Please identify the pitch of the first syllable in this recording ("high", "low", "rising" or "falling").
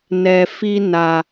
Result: low